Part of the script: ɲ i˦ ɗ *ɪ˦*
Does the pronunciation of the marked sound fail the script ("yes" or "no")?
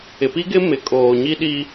yes